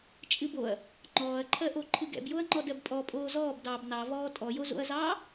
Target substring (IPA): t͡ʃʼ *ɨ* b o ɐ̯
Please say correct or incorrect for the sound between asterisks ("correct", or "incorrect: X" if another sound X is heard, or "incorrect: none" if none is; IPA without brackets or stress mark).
correct